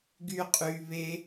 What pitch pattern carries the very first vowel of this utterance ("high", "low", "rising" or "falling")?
high